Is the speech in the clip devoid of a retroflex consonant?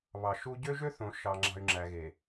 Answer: yes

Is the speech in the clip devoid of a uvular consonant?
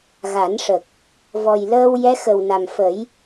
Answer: yes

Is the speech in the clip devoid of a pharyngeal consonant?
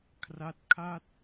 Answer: yes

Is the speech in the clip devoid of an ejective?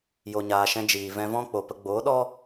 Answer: yes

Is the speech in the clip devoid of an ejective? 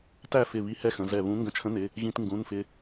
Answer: yes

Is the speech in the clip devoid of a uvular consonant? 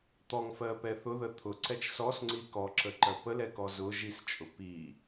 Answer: yes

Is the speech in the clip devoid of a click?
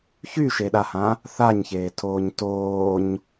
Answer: yes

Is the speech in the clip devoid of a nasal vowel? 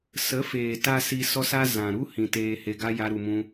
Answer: no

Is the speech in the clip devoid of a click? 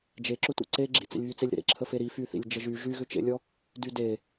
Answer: no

